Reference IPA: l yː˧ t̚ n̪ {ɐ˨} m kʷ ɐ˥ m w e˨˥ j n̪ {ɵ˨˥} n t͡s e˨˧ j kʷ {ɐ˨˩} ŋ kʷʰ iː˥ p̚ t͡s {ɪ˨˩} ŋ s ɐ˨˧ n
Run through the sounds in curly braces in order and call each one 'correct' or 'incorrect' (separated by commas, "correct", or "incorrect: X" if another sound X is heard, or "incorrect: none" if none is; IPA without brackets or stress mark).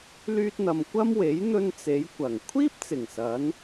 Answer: correct, incorrect: ɵ˧, correct, correct